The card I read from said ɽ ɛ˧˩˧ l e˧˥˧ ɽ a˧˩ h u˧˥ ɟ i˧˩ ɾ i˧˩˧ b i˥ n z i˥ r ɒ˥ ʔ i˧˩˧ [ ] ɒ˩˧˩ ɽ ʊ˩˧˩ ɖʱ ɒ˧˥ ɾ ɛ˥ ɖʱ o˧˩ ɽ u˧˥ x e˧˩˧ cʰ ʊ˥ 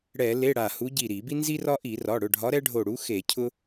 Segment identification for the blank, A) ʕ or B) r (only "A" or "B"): B